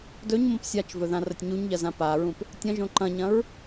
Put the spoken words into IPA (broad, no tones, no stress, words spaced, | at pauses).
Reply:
dɵɲmõp sʲat͡ʃvɵ ðãrɐtʲɲuɲʎɐ zãpaɹũp | tʲɐ̃ ʒõǃɐ̃ɲɐ̃ɹ